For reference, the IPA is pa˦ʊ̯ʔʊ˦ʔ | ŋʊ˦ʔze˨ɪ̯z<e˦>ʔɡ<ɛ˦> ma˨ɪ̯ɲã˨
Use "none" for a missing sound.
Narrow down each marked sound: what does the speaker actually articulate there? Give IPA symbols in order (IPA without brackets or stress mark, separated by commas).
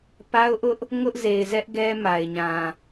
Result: ɛ˦, ɛ˦